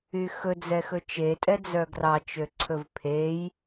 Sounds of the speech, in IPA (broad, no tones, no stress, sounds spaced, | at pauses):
y x ɵ d͡z ɛ x ɵ t͡ʃ e tʼ ɛ d͡z œ ɡ r ɑ t͡ʃ ø ǀʰ ɵ v pʰ e j